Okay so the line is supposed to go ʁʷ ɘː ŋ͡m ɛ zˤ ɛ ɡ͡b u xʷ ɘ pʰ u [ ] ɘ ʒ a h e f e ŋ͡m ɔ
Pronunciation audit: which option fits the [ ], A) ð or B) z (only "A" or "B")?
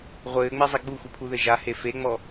A